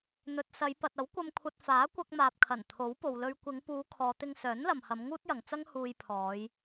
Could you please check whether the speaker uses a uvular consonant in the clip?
no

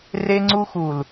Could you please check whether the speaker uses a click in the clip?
yes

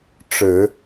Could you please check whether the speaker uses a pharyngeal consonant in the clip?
no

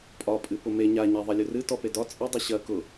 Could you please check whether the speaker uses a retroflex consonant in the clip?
no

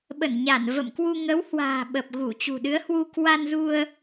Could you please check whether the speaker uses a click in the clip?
no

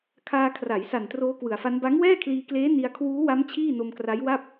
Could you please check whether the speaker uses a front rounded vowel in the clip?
no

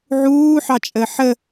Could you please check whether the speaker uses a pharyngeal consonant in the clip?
yes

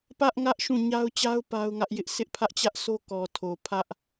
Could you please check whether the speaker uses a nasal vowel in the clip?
yes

